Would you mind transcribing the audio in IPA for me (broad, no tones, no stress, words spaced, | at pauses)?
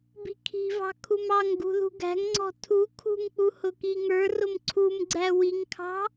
bi̤kʰi̤vɑ̤ kʰumɑŋɡṳ ðṳɡæ̤ŋŋ͡ǀɔ̤ tʰu kʰṳŋk͡pu hʊkiŋə˞rʊm ǀʰumɡ͡ǀæ wiŋkʰɑ̤